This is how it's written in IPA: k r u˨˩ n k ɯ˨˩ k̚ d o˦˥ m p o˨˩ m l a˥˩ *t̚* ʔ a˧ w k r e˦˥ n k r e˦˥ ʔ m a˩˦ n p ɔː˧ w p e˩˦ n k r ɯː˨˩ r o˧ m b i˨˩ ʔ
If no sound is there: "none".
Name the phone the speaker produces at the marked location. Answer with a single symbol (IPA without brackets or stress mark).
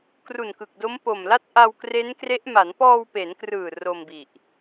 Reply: t̚